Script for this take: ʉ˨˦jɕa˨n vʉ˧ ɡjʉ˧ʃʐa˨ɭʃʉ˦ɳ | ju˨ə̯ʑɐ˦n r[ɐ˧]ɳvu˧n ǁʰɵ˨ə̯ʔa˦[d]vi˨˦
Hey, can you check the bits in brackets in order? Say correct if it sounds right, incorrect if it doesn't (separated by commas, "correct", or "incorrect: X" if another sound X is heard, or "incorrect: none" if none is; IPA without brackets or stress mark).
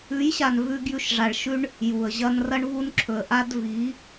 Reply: correct, correct